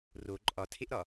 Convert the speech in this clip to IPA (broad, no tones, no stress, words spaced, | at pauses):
ro ǃʼɒtʰeʔɾɒ